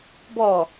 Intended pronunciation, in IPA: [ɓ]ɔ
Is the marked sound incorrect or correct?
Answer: incorrect